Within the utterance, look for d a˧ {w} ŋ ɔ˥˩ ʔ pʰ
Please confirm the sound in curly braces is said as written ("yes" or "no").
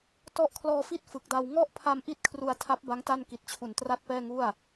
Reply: yes